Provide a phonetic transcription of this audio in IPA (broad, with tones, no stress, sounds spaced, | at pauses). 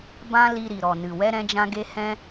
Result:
b ã˦ l i˧ ɾ i˨ ɾ ɔ˨ n ɨ˨ w ɛ˦ ɾ ɛ̃˦ d͡ʒ ã˦ ɡ e˦ h ɛ̃˦